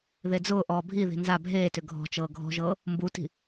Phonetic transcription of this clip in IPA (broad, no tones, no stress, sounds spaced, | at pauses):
ð e d͡z ʊː ʔ ɔː bʱ i ð i̤ n z a bʱ eː t ʏ ɡʱ ɔ̤ t͡ʃ ɤː ɡʱ ɔ̤ ʒ ɤː | m b u t i̤